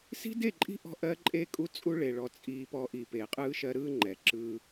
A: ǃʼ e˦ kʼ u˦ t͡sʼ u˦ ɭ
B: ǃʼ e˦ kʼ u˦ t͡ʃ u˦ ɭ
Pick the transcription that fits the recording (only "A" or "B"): A